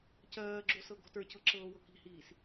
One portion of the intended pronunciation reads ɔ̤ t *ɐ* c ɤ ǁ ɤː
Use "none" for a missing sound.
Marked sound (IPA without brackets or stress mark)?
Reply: ə˞